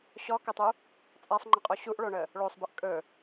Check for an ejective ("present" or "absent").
present